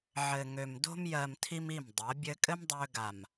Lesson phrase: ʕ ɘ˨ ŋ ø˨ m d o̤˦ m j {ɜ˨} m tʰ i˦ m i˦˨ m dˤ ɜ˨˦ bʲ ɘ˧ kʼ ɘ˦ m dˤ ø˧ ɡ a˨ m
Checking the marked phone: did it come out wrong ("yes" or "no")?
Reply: no